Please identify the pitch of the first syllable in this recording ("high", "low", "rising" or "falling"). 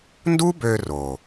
high